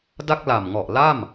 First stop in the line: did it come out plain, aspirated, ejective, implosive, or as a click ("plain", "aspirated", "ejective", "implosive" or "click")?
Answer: plain